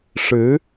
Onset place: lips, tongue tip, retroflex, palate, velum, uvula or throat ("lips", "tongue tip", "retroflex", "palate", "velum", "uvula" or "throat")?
retroflex